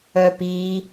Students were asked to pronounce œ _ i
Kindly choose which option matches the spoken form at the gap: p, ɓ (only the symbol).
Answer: p